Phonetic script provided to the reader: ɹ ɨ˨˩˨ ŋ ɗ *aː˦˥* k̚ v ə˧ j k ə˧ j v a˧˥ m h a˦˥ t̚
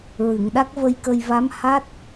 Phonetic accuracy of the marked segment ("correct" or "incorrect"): incorrect